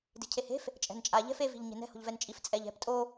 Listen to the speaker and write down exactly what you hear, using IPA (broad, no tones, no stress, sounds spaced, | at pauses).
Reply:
d i̤ cʰ e h e̤ f | t͡ʃʼ ɛ̤ n t͡ʃʼ a ʎ ɛ̤ f e v i̤ ʎ ɲ e̤ n ɛ̤ h o̤ ʎ v ɛ n t͡ʃʼ i f t͡sʼ ɛ ʎ ɛ̤ p tʼ o